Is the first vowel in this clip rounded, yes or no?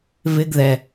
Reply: no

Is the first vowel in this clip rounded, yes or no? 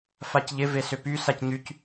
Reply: no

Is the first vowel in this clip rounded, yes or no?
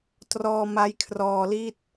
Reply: yes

